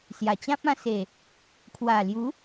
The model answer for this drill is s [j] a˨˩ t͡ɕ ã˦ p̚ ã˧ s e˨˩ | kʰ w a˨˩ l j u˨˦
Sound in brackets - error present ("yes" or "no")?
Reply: no